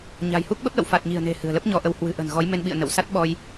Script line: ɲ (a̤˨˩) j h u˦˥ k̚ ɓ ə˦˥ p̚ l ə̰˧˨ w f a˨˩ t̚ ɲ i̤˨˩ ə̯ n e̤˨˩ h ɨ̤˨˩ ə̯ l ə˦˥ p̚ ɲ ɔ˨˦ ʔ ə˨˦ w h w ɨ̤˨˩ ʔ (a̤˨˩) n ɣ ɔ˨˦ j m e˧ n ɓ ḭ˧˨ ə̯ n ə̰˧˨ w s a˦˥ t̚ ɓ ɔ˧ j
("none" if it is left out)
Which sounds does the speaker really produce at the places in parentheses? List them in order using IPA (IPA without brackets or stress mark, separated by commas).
a̤˨˩, ə̤˨˩